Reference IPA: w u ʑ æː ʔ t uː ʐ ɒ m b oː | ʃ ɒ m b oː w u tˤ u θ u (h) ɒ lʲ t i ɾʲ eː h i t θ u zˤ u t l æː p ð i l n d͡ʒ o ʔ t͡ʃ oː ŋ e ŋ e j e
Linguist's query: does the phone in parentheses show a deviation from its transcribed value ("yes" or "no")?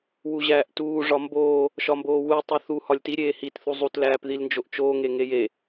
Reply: no